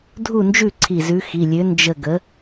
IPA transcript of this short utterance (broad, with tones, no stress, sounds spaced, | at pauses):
dʱ u˥˨ n d͡ʒ ʉ˥˨ ǀʰ i˧˩ z ʉ˨˥ x i˩˧˩ lʲ ø˨˥ n d͡ʒ ə˧˩ ɡ ə˨˥